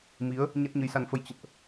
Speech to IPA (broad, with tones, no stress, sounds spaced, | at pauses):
m i˨˦ ə̯ | ɲ a˦˥ t̚ ɲ ə˨˦ j s a˧ n f ə˧ j t͡ɕ ə̰˧˨ n ʔ